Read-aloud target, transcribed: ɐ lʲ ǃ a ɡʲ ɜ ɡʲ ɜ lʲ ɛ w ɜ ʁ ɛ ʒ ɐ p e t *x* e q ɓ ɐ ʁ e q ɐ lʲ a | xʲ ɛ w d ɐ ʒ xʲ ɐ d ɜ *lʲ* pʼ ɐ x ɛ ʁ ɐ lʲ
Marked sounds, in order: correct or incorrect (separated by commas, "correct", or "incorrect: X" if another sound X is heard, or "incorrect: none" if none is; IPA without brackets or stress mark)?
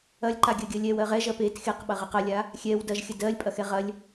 correct, correct